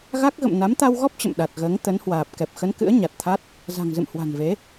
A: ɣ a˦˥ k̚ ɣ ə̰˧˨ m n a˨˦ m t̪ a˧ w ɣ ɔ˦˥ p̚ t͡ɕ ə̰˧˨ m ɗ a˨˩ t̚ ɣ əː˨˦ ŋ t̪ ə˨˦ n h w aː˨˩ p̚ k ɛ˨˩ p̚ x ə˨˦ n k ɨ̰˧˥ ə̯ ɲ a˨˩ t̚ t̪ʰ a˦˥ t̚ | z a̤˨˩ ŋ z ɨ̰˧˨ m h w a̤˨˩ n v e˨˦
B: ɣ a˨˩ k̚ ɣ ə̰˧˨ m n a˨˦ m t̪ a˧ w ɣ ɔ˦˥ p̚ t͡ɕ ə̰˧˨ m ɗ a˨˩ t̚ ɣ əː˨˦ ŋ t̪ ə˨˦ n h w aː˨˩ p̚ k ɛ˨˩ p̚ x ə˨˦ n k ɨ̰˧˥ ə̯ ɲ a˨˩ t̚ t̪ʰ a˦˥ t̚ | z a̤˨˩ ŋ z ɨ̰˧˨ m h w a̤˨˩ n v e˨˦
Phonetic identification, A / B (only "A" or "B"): A